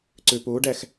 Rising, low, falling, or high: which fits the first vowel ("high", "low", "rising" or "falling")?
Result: low